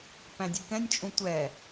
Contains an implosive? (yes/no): no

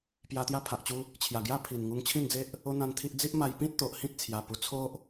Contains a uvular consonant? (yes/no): no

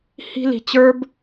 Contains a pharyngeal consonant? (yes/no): no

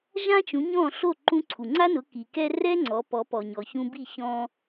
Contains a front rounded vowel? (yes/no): no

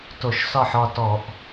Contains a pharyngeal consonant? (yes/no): yes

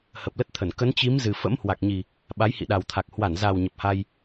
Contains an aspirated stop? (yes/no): yes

